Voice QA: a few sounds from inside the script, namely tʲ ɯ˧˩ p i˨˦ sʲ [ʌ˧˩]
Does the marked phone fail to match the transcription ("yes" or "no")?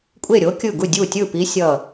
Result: no